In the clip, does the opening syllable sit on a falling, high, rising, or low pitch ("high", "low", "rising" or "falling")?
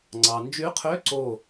low